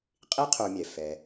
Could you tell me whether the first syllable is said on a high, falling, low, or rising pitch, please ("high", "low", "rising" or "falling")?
high